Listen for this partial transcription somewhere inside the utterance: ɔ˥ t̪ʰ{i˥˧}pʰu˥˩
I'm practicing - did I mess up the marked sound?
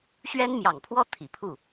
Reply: yes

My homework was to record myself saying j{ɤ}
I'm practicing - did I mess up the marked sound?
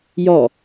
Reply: yes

